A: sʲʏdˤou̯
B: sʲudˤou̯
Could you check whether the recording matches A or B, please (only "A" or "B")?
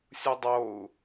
B